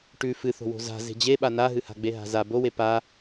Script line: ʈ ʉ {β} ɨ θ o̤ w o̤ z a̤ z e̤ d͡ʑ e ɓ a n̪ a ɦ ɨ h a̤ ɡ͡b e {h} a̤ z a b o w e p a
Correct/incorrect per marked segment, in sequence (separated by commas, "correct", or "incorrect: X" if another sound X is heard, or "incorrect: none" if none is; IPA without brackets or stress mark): incorrect: f, incorrect: ɦ